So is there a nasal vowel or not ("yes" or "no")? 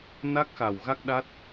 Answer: no